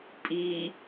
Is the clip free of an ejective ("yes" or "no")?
no